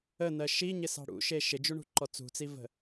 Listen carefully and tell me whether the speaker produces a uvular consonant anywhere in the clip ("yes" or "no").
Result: no